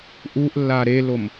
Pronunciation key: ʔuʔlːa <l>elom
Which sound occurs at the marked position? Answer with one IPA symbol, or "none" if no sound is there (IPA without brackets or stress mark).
ɾ